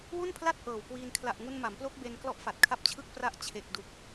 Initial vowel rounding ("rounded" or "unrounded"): rounded